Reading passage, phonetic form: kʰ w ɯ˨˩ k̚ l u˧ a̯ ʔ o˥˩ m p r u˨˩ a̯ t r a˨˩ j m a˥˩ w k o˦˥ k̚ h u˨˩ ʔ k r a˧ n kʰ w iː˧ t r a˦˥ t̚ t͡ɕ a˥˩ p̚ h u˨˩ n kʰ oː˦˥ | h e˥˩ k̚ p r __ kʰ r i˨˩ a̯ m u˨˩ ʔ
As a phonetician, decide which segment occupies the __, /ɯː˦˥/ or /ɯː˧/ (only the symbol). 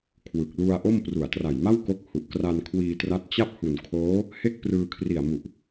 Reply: ɯː˧